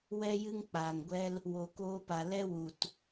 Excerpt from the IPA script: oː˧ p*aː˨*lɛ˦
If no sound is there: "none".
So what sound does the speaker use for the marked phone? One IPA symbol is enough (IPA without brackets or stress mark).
a˨